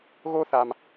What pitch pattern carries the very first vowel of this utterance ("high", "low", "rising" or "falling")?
high